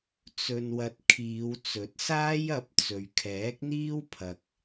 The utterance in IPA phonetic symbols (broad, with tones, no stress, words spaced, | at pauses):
t͡sɵ˨nwɐ˨t̚ kʰiː˨˧w t͡sɵ˨˥t̚saː˥j ɐ˨˥p̚ t͡sɵ˨ɥkʰɛː˨˥k̚n̪iː˥w pʰɐ˨k̚